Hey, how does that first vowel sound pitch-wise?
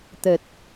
low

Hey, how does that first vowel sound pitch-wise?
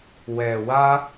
low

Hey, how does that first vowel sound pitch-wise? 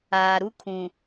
low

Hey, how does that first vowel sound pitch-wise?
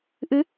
rising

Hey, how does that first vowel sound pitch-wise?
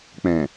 low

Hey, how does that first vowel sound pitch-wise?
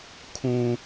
high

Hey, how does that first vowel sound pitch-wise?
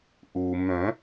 low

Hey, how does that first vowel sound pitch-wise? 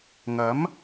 rising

